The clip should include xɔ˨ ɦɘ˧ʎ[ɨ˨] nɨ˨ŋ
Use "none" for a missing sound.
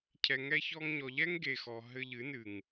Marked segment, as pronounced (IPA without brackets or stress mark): ɨ˨˦